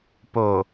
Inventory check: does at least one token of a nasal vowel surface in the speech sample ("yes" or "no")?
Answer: no